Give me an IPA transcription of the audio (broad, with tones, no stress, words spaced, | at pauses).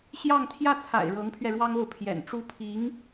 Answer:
ɕjɑ˥˧ŋ t̪ʰjä˥˩t͡sʰa̰˨˩ɪ̯ ɻɤ˧˥ŋpʰɥɛ˧ ɻwɑ˥ŋo˥˩ʊ̯ pʰjɛ̰˨˩nʈ͡ʂu˥ pʰi˧˥ŋ